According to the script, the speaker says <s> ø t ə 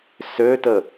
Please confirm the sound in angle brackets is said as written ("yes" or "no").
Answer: yes